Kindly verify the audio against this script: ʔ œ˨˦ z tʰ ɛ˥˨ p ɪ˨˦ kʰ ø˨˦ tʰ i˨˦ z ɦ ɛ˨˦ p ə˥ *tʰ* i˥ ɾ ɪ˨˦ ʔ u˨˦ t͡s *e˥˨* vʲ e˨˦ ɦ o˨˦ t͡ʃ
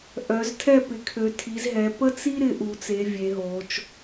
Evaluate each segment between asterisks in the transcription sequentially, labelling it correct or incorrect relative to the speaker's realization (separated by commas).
incorrect, incorrect